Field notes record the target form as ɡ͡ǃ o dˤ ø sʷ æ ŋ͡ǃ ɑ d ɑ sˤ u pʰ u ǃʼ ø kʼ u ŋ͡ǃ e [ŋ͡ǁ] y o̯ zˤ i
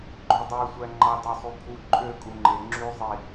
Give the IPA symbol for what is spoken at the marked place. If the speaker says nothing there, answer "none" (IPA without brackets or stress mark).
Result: ŋ͡ǁ